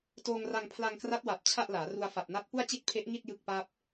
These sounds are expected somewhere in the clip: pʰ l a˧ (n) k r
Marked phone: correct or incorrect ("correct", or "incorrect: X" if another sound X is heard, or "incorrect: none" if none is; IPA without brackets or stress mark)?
incorrect: ŋ